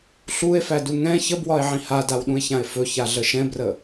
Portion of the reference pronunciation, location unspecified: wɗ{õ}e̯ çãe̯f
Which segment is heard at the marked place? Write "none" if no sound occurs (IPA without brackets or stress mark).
ũ